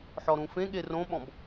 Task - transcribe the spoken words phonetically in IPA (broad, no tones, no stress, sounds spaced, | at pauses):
ħ ɔ ɾ ũ f ẽ ɠ e r õ ɓ ɔ̃ b